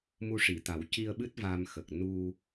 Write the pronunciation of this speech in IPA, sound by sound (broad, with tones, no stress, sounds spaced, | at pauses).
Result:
m u˧ ʂ i˨˩˨ t̪ a˨˩˦ w c i˧ ə̯ ɓ ɨ˦˥ t̚ v a˧ m x ə˨˩ k̚ n u˧